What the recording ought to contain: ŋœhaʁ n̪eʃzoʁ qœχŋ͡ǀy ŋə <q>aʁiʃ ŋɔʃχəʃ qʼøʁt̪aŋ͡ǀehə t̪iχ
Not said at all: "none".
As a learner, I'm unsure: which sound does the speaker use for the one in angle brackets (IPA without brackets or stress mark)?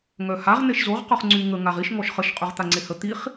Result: ŋ